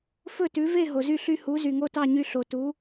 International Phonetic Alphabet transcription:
f ɵ˥˩ t ʉ˩˥ v e˥˩ ɦ o˩ z y˥˩ ɬ y˧ h u˩˥ z y˩ ŋ o˥˩ t ɑ˥˩ ɲ y˧ ɬ o˩ t u˩˥

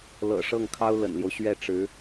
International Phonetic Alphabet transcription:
l ɤ̰˨˩ ʂ ɤ˥˩ ŋ kʰ ɑ˥ ʊ̯ l ə̰˨˩ n l j o˦ ʊ̯ ɕ ɥ ɛ˥˩ ʈ͡ʂ ɻ̩˧˥

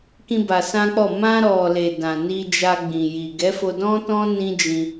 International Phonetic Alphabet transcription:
k ĩ˧ b a˧ s ã˦ k͡p ɔ˦˨ m ã˧ ɾ ɔ˨ l e˨ d ã˨ n i˧ d͡ʒ a˧ ɡ͡b ĩ˨ j i˨ ɡ ɛ˨˦ f o˧ d ɔ̃˦ t ɔ̃˦ n ĩ˦ d͡ʒ ĩ˧

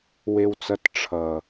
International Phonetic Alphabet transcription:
w e˧ w t͡s ʌ˧ t ʈ͡ʂʰ ʌ˨

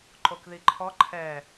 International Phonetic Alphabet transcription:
ǃ o k ð i ǃʰ ɔ ǃʰ ɛ

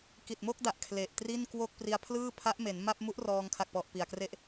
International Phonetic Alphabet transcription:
k i˨˩ t̚ m o˥˩ k̚ d a˨˩ ʔ kʰ l e˨˩ ʔ t r i˥˩ n k w o˥˩ k̚ p r i˧ a̯ pʰ l ɯː˥˩ pʰ a˦˥ ʔ m e˩˦ n m a˥˩ p̚ m u˦˥ ʔ r ɔː˧ ŋ kʰ a˨˩ k̚ p ɔ˨˩ ʔ p i˨˩ a̯ k r e˥˩ ʔ

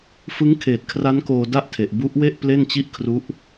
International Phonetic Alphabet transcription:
f ɯ˦˥ ŋ kʰ eː˨˩ t̚ kʰ r a˦˥ n k oː˧ d a˥˩ ʔ tʰ e˨˩ ʔ b u˦˥ ʔ w e˥˩ ʔ p l e˥˩ n t͡ɕ i˥˩ ʔ kʰ r u˦˥ ʔ

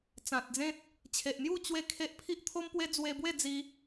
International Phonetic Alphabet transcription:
t͡s ã˨ t̚ d͡z ẽ˦ t̚ | t͡ɕʰ e˨ ʔ n̪ j u˥˧ t͡ɕ w e˥˧ kʰ e˦ ʔ pʰ i˦ ʔ t̪ʰ o˦ m p w e˦ d͡z w e˧ b w e˥˧ d͡z i˧

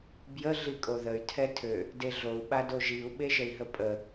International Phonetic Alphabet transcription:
b j ə ɮ i kʼ o ð ə y̯ tʰ ɛ tʰ ø | d e ɮ o u̯ ɓ a d o ʒ i u̯ ɓ e ʒ ə i̯ ɦ ə pʼ ə

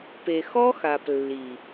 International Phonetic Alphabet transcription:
p e˨ x ɔ˦ x a˨ p lː i˨

